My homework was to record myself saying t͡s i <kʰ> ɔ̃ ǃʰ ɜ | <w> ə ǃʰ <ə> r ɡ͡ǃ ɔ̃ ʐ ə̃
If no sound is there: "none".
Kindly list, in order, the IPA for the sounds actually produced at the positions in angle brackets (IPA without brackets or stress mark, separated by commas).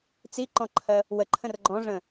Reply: ǃ, w, ə̃